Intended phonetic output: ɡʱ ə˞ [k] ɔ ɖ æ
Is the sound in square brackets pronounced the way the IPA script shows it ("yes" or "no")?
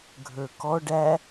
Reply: yes